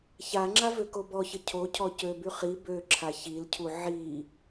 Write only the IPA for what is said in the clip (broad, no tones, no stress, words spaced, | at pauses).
çaŋ͡ǁa vøkobɔçə cʰo cʰɔcøby χi bøǁʰa çilcʰu ʕi